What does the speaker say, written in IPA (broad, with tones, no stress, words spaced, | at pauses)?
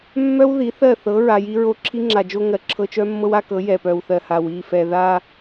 mːœ˦w ði˨˦θɜ˦˨ θɤ˨˦ ɹa˨ji˦ɹo˦ ǁʰi˦ŋ͡ǁa˨d͡ʒo˦ ŋɜ˨ǁʰɤ˦ t͡ʃœ˦mːɤ˦wa˦kɤ˨˦ jɛ˨pœ˨wθɜ˨ha˨w i˦˨fɛ˨ ða˦